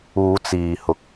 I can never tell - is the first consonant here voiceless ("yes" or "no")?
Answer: yes